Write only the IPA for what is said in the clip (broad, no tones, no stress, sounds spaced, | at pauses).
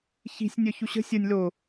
ç i̤ sʲ nʲ ɔ ç u ɕ ə̤ sʲ ʌ nʲ l o